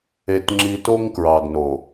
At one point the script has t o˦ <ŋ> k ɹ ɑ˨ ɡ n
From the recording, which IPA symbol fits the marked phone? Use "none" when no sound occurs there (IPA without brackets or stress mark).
ŋ